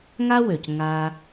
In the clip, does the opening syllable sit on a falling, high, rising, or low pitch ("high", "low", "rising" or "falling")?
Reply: high